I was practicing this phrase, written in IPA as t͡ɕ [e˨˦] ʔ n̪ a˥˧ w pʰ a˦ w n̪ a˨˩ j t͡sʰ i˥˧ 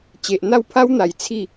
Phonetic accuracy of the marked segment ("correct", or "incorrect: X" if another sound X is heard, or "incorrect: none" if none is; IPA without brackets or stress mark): incorrect: e˨